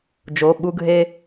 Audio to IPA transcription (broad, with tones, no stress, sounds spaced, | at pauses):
d͡ʒ o˩˧˩ ɓ u˦ ɡʱ e˦